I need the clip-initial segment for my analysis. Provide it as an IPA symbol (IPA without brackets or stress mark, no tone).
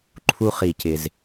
ǃʰ